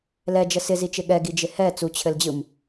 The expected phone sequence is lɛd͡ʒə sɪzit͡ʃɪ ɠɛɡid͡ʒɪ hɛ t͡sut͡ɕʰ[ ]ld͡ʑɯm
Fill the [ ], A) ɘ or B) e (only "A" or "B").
A